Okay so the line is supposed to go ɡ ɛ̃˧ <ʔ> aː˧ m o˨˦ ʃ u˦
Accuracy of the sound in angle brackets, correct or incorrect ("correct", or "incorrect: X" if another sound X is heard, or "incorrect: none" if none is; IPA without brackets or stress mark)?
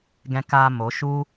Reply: incorrect: k